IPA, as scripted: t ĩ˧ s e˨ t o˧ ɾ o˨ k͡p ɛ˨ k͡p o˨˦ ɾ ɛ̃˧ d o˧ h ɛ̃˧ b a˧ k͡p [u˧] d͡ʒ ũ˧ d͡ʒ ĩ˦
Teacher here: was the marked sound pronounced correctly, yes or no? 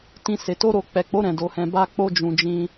no